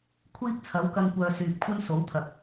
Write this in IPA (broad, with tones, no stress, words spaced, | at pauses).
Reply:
kʷʰiː˥k̚t͡sʰɐ˨˥wkɐ˧ŋkʷœː˨ syː˨p̚ kʷʰɐ˥nso˨˥wt̪ʰɐ˨k̚